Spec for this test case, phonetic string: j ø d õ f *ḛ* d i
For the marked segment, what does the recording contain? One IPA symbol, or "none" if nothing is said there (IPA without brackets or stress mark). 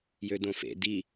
ḛ